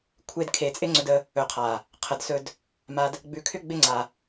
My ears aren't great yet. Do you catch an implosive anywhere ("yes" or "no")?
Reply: no